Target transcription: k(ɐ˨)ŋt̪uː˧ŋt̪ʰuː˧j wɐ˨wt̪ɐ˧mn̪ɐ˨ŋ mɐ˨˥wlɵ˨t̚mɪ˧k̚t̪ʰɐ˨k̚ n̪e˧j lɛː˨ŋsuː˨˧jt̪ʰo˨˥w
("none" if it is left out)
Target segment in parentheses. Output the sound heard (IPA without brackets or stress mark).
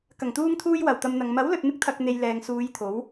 ɐ˨˩